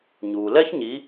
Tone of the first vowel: low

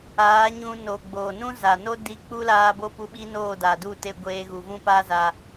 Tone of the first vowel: rising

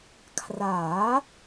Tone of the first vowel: rising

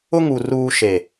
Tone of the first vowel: high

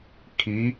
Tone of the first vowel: rising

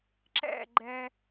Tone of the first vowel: falling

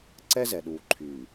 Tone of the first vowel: high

